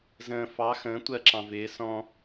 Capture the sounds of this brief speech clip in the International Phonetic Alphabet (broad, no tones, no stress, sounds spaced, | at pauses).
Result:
z ə̃ː f ɑ x ə̃ː tʷ ɜ ǁ ɑ̃ v ɪː s ɔ̃